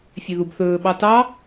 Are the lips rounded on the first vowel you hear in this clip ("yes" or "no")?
yes